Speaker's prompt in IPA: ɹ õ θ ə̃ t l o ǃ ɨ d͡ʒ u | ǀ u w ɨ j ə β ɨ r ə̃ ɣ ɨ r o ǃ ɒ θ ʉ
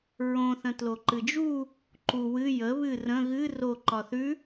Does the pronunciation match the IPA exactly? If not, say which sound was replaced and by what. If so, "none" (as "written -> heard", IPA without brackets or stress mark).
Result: ǀ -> ǃ